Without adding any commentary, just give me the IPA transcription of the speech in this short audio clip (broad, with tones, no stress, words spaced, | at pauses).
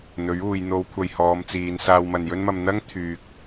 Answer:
n̪ɵ˨˥ɥuː˨j n̪o˨˧w kʷʰɐ˧j hɔː˨˧mt͡siː˨n saː˧wmɐ˨njɵ˥nmɐ˧m n̪ɐ˥ŋ t̪ʰyː˨k̚